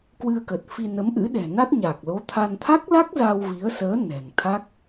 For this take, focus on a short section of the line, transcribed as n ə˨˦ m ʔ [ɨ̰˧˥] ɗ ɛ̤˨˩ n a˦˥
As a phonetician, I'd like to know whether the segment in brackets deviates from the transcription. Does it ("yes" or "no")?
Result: no